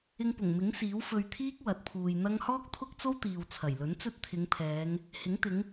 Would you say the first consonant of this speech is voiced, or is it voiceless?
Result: voiced